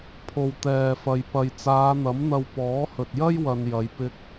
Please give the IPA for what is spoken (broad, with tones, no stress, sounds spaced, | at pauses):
pʰ o˨ w t̪ ɛː˨ f ɐ˨ j p ɐ˨ j t͡s aː˨˧ n̪ ɐ˨˥ m n̪ ɐ˧ w p ɔː˨˥ h ɵ˨ t̚ j ɐ˥ j w ɐ˧ n j ɐ˨˧ j p ɪ˧ k̚